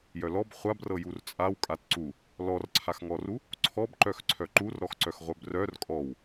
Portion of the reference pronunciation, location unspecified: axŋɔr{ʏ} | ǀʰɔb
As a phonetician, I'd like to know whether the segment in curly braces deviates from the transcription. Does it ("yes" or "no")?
yes